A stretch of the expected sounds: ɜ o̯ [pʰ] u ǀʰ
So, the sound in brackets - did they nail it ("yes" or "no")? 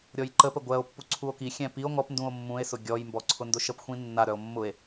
no